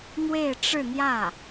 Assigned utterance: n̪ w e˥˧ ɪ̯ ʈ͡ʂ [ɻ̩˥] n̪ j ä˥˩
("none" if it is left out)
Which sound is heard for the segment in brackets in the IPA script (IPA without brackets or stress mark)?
ɻ̩˥˧